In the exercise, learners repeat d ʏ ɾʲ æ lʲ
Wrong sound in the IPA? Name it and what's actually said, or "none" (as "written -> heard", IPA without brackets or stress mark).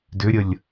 æ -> ə